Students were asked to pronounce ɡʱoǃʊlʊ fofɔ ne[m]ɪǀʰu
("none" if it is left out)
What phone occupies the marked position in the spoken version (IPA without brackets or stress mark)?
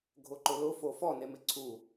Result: m